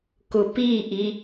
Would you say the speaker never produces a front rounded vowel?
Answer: yes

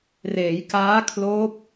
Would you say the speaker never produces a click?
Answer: yes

